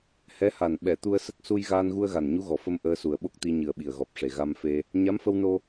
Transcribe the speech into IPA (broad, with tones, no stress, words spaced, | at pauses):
hɛ˧˥ha˨˩n ɓɛ˨˩˨t̪u˧ə̯sə˦˥k̚ su˧jɣaː˧nɣu˧ə̯ɣa˨˩n ɲu˧˥ɣɔ˨˩fə˧m ʔəː˧su˨˩ə̯ɓo˦˥k̚t̪i˧ ɲɨ˨˩ə̯ɓi˨˩ə̯ɣɔ˨˩p̚ʂe˨˩ ɣa˧mfe˧ | ɲa˧˥mfə˧wno˧